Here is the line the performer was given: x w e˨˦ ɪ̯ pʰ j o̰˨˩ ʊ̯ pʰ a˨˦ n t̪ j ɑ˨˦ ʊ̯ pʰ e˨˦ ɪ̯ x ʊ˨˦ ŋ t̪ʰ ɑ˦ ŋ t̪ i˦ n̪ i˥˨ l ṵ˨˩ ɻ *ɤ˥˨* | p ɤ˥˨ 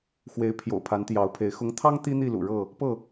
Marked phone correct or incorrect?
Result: correct